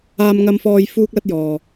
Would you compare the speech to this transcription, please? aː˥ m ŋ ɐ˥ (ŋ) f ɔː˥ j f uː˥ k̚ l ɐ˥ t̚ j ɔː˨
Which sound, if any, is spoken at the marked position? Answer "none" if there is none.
m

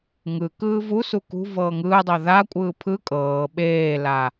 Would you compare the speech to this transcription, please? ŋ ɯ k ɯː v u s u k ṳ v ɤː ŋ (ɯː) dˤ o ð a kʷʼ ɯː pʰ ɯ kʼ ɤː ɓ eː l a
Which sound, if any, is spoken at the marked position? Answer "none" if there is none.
ɯː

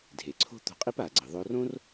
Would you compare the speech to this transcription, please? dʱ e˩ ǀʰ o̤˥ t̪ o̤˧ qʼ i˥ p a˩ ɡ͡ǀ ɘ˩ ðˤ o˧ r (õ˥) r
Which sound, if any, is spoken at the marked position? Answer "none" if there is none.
õ˥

